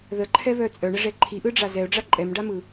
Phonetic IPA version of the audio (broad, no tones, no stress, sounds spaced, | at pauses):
ð ə ǃʰ ɛ β œ t͡sʼ œ ɳ ə ʐ ɛ ǃʰ i ʔ ɯ ɖ͡ʐ a z ɛ ʊ̯ ɖ͡ʐ a ǃʼ ɛ m ɖ a m ɯ